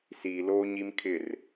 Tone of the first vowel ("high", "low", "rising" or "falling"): low